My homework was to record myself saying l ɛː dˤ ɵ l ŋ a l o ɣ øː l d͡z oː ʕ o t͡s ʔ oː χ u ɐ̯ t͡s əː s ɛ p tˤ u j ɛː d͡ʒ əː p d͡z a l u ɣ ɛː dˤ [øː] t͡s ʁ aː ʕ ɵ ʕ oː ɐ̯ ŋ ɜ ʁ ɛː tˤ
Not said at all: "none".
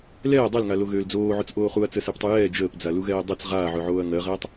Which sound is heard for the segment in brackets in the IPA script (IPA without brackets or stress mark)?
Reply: ø